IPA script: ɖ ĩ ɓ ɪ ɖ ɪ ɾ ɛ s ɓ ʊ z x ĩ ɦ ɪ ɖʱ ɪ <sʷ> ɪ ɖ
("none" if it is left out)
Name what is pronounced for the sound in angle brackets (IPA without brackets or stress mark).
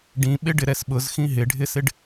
s